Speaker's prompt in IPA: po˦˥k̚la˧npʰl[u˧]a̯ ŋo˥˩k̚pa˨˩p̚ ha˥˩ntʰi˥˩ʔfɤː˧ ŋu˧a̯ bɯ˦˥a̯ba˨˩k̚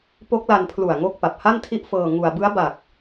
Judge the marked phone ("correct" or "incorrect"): incorrect